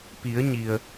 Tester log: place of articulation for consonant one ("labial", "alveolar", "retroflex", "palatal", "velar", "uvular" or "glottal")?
labial